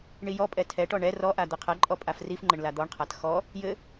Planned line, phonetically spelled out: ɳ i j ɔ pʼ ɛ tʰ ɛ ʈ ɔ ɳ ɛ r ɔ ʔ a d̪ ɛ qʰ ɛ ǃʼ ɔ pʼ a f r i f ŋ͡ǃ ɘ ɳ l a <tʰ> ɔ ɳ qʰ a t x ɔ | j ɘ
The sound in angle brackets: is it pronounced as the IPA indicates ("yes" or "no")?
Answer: no